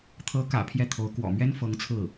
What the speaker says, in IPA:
t̪ʰ ɤ˧˥ k ä̰˨˩ pʰ j ɛ˥˩ t̪ʰ o˧˥ ʊ̯ k w ɔ̰˨˩ m ɥ ɛ˥ n f ɤ˧˥ ŋ t͡sʰ ɹ̩˥˩

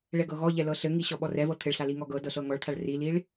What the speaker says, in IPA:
ɭ ɛ ɡ ɤ ɣ ɔ ʎ ɛ l ɤ ɬ ɘ ŋ i ɕ ɔ ɓ ɔ r ɛ v ɤ t̪ʰ ɘ ɭ ɬ a l i ŋ ɔ ɡ ɤ d ɤ ɬ ɤ ŋ ɔ ɭ t̪ʰ a ɭ r i l i ɭ

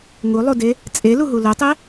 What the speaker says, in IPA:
ŋ u lˠ u d e | t͡sʼ e l u ɦ u l ø tˤ ɛ

